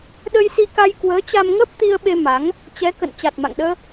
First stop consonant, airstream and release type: implosive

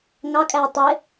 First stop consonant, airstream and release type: ejective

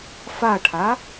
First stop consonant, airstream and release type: aspirated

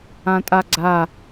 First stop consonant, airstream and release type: ejective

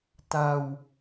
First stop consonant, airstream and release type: plain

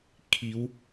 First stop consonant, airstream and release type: aspirated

